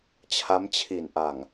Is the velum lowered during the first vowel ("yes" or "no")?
no